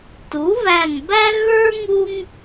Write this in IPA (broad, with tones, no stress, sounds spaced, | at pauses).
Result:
t u˩˥ β æ˧˩ ŋ b æ˥ ɣ ə˞˥ ŋ u˥ ŋ